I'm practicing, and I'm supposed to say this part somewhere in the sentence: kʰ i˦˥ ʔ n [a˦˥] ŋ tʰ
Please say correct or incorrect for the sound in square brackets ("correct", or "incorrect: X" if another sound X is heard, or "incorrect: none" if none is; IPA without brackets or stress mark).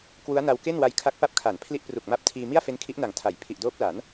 incorrect: a˨˩